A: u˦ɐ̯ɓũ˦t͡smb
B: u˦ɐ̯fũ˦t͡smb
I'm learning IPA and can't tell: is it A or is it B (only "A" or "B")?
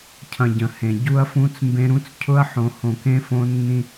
B